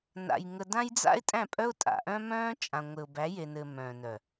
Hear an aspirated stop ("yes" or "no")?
no